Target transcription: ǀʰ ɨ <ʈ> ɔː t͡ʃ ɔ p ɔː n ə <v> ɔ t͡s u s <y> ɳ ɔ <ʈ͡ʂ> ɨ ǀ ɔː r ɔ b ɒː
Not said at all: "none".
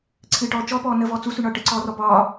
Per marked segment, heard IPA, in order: ʈ, v, y, ʈ

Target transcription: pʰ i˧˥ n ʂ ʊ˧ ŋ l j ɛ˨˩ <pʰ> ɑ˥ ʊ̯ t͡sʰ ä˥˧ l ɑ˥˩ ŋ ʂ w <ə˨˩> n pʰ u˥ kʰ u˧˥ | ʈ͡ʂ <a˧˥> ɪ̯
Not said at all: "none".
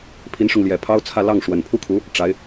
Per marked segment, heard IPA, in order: pʰ, ə˨˩, a˧˥

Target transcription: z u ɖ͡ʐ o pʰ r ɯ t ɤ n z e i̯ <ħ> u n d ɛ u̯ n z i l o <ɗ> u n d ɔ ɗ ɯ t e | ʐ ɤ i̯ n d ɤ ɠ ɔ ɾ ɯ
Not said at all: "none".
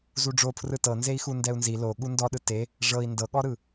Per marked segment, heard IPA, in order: x, ɠ

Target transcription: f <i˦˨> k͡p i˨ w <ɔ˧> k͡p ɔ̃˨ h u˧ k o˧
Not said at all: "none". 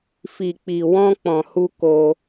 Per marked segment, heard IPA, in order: i˨, ɔ̃˧

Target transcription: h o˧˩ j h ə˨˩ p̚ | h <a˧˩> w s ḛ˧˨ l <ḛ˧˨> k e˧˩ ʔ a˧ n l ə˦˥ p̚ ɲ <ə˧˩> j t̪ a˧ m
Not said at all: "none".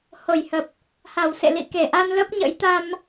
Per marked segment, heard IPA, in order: a˧˩, ḭ˧˨, ə̰˧˥

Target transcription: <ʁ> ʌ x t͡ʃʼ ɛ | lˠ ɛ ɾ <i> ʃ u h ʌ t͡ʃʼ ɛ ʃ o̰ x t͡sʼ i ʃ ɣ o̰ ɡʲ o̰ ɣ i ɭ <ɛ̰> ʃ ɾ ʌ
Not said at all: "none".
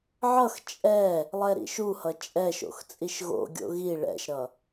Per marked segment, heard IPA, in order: ʕ, ḭ, ɛ̰

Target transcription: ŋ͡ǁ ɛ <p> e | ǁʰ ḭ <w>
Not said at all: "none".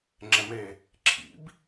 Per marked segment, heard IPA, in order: m, b

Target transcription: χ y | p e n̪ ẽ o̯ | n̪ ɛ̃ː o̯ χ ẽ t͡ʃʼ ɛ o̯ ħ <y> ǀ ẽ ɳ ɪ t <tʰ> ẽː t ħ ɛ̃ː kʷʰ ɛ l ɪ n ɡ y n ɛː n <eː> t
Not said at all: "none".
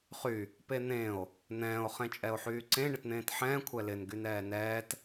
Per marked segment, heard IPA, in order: yː, n̪, ɛː

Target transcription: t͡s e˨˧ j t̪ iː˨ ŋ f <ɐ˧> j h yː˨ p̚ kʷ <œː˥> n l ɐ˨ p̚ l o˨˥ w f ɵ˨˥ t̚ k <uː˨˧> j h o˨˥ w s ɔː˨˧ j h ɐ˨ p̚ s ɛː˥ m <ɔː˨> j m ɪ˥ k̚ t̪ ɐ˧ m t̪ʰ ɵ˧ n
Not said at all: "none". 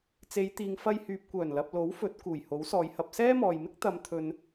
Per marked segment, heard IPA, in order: ɐ˧, œː˨˩, uː˨˩, ɔː˨

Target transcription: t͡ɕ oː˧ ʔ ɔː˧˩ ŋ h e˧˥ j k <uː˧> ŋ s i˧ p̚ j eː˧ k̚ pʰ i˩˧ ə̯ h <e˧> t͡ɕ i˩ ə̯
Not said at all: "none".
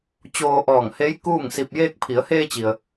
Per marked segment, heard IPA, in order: uː˥˨, eː˧

